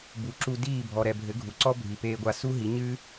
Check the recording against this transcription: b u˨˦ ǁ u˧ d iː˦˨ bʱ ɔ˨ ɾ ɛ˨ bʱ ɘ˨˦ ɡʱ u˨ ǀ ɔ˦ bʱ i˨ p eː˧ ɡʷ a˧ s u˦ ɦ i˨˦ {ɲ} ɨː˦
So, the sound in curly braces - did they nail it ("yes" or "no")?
yes